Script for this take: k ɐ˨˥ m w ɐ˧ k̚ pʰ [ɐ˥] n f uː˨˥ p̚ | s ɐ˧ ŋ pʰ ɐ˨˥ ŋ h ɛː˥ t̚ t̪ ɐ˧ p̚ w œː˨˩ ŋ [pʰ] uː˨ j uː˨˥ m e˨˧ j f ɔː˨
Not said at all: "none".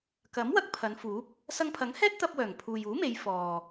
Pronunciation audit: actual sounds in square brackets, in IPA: ɐ˨˧, pʰ

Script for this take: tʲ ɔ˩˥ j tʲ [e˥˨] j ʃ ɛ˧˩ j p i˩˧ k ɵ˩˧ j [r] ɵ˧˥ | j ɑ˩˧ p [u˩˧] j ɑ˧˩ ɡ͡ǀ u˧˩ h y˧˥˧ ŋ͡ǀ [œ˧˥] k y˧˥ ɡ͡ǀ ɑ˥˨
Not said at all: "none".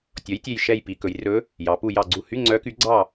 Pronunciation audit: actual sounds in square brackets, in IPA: e˧˩, r, u˧˩, œ˧˥

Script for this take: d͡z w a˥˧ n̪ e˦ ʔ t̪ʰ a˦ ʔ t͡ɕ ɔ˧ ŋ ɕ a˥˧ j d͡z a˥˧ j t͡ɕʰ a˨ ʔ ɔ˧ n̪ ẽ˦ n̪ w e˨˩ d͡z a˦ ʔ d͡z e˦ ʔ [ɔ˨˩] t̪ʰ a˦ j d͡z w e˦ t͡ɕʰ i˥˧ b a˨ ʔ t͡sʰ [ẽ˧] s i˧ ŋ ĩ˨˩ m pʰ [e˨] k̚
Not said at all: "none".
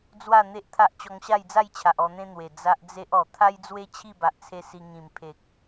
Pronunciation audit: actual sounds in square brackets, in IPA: ɔ˨˩, e˧, e˨

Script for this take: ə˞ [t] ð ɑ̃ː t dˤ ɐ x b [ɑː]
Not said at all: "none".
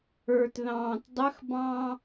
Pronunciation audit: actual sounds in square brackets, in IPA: t, ɑ̃ː

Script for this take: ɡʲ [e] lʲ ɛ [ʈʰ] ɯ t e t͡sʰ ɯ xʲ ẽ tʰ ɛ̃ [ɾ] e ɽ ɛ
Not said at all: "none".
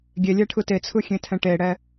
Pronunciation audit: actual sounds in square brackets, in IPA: e, ʈʰ, ʈ

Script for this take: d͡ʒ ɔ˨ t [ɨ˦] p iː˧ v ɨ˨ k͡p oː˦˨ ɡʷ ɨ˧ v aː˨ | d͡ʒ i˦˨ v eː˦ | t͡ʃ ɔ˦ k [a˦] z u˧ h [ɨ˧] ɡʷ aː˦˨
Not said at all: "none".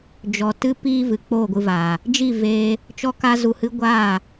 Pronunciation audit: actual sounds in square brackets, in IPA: ɨ˧, a˦, ɨ˦

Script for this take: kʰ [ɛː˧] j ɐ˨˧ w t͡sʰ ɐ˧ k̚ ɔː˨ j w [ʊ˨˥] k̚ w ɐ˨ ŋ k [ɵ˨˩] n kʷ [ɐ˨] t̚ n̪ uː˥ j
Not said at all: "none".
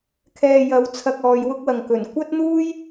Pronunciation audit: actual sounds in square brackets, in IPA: ɛː˧, ʊ˥, ɵ˨˩, ɐ˥

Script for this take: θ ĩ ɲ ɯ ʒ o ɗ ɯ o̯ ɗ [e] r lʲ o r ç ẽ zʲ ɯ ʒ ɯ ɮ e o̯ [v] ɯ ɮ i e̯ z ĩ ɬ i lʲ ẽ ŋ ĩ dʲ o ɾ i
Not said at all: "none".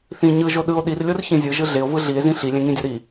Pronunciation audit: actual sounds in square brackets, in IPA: i, v

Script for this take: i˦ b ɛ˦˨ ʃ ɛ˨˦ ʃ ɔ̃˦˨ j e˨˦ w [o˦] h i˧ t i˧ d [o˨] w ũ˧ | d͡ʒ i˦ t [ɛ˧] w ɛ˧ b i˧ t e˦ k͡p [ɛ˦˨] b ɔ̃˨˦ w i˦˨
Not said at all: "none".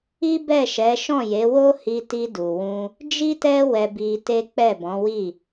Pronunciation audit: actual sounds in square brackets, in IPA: o˦, u˨, ɛ˦, ɛ˦˨

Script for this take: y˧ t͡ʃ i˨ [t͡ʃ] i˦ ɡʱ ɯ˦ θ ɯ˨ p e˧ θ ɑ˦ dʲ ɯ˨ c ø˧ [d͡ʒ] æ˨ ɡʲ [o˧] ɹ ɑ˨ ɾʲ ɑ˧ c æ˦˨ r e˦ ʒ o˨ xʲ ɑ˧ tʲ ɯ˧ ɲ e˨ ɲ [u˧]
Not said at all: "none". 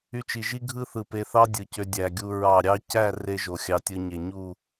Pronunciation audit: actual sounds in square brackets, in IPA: ʒ, dʲ, u˧, u˦˨

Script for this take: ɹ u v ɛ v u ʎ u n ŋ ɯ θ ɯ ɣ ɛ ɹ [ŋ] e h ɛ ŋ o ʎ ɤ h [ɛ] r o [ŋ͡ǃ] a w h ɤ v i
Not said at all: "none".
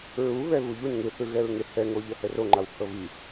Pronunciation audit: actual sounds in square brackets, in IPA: ŋ, ɛ, ŋ͡ǃ

